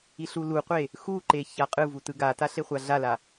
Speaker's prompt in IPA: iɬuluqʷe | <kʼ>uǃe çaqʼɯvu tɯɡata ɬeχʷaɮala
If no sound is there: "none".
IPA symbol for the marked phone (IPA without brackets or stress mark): x